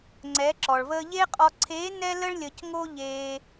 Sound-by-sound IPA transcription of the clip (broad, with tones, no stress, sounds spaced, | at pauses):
ŋ͡ǀ ɛ˩˧ ǁ ɔ˩ ɭ v əː˧ ʎ e˥ qʼ ɔ˧ ǀʰ eː˧˥ n ɛ˥ l ə˥ ɭ lʲ ə˧ c ŋ o˥ ʎ eː˧